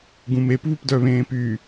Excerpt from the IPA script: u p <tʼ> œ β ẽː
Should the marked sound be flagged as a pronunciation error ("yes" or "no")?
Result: yes